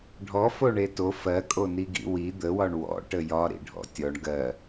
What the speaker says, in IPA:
ɖʱ ɔ f o ɳ e t o f ɜ kʼ o n i ɡ ḭ w i d̪ ə w ɒ ɳ w ɔ̰ ʈ ə j ɒ ɾ ḭ ɖʱ ɔ̰ tʲ ɔ ɳ ɡ ɜ

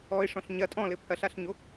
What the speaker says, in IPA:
ɔ ɪ̯ ʂ ɔ̃ ɬ ɲ ɐ tʼ ɔ̃ l ɘ pʰ ɐ ɬ a ɬ ɲ o

